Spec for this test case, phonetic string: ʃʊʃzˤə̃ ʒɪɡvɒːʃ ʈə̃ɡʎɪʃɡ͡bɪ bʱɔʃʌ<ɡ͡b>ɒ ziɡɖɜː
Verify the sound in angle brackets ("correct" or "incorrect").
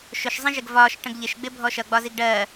correct